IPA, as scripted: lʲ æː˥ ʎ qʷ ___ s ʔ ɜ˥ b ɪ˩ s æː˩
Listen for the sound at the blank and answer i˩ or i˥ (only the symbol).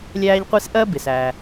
i˥